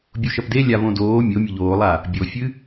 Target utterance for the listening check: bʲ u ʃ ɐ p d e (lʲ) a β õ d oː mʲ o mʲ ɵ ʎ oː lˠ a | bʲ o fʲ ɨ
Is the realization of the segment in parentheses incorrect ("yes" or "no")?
no